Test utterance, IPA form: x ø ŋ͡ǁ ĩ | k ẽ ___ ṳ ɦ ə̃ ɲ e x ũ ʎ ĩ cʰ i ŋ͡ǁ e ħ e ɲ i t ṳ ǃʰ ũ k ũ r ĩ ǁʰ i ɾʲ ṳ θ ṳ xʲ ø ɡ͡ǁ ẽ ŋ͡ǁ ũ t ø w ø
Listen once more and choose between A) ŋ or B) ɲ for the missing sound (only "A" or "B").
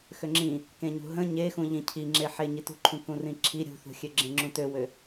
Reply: B